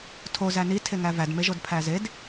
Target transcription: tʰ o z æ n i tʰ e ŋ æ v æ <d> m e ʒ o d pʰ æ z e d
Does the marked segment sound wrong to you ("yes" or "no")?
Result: no